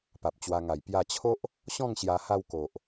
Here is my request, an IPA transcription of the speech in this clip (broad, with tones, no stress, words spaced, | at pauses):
pa˨p̚t͡ɕwa˧ŋa˨˩j pja˧t͡ɕʰo˦ʔ | ɕɔ̃˥˧ŋɕja˧ha˧w ko˨ʔ